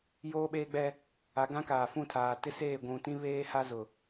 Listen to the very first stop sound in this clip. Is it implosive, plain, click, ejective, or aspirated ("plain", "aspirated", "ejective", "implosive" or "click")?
implosive